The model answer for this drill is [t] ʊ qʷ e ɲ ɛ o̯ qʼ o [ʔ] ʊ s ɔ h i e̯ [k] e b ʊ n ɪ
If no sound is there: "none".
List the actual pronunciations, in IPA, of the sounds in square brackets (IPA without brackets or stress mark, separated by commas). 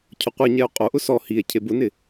cʰ, ʔ, cʰ